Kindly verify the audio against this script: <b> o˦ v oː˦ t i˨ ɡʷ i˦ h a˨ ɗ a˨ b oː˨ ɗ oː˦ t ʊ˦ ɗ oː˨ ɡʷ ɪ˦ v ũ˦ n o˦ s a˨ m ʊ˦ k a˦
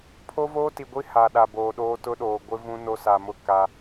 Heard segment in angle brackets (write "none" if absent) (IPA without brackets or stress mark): pʰ